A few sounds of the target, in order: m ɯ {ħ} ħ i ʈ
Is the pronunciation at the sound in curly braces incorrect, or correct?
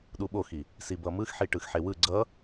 incorrect